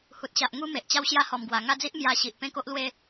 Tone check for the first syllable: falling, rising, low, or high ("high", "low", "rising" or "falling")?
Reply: low